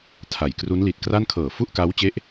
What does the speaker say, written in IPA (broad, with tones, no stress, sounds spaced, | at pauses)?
tʰ a˨˩ j k r u˦˥ n l i˨˩ t̚ k r a˥˩ n kʰ ɤː˨˩ f u˥˩ ʔ k a˦˥ w t͡ɕ e˦˥ ʔ